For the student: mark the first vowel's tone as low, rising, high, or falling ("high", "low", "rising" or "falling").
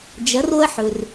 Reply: rising